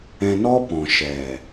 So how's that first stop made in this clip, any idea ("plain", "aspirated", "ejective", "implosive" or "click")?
plain